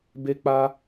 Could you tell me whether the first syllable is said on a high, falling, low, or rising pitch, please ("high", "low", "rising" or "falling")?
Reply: high